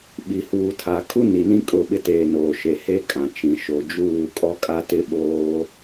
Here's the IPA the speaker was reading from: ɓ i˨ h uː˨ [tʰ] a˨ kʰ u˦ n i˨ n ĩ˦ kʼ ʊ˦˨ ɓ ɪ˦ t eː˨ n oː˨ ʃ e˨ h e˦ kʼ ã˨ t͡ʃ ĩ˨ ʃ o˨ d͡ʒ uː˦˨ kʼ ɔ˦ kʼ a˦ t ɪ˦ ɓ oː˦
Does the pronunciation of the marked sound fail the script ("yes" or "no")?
no